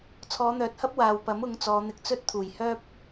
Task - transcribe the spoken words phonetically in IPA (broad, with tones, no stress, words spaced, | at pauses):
t͡sʰɔː˨˧n̪œː˨t̚hɐ˥p̚ waː˨wpɐ˨˥m ʊ˨˧ŋt͡sɔː˨˧n̪ɪ˧k̚ t͡sɵ˥t̚t̪ʰuː˨˩j hœː˥p̚